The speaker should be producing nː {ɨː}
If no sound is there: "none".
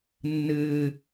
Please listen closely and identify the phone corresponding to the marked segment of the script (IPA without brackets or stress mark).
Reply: ɨː